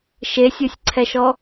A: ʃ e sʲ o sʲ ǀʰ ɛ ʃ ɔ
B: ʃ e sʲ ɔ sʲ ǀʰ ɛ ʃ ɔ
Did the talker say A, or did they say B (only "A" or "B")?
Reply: A